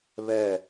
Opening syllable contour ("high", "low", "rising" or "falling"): falling